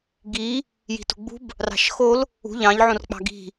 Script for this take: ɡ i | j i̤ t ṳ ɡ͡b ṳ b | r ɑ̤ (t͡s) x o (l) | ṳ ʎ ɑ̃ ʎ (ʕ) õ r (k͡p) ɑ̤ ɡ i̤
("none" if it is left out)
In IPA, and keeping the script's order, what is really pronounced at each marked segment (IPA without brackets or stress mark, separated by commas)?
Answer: ʃ, l, ʕ, k͡p